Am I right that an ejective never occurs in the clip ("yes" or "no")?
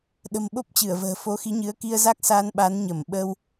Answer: yes